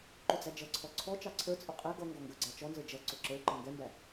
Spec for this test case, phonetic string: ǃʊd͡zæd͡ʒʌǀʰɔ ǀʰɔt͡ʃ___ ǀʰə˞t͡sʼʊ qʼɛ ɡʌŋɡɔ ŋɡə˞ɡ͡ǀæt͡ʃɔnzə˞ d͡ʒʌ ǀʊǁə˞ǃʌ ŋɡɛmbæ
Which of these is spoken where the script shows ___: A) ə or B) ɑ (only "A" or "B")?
B